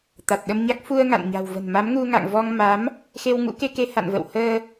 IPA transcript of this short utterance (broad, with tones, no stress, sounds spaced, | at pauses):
t̪ a˨˩ t̚ ɗ ə˧ m ɲ a˦˥ k̚ f u˧ ə̯ ŋ a̰˧˨ n ɲ a̤˨˩ w v ə̤˨˩ n m a˨˦ m ŋ u˧ ŋ a̰˧˨ ŋ v ɔ˧ ŋ m a˨˦ m | x e˧ w ŋ ṵ˧˥ k e˧ k e˧ h a̰˧˨ n v ə̰˧˨ w h əː˧